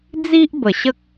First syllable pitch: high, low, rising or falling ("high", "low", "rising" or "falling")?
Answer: high